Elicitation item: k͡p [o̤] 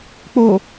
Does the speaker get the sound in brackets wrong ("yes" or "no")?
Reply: yes